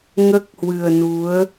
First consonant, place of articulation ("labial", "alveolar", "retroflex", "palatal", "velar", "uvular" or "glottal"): velar